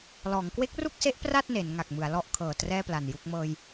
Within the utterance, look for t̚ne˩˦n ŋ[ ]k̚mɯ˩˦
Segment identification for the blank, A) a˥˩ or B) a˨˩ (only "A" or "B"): B